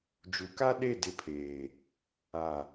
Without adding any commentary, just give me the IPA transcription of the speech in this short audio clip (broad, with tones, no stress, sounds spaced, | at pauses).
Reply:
d͡ʒ u˨˦ k a˦ ɗ e˦˨ d ɪ˦˨ pʰ eː˨ | a˨